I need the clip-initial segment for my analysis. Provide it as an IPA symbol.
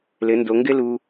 l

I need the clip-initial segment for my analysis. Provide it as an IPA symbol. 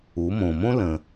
u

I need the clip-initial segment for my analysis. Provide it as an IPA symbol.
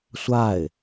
sʷ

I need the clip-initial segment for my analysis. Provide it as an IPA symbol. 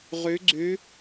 ʁ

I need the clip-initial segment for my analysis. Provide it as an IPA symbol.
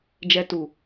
d͡ʒ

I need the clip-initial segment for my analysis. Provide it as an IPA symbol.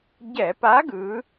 ɟ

